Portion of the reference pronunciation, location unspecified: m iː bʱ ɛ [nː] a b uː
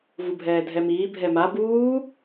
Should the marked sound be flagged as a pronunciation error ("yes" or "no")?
yes